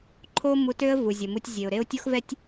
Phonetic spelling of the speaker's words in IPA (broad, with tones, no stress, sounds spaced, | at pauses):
ǃʰ oː˥ m u˧ t ø˥ ə̯ v u˩ zʲ ə˩ m u˧ tʲ zʲ e˩ ʊ̯ ɾ e˥ ʊ̯ tʲ o˥ x v ɛ˥ tʲ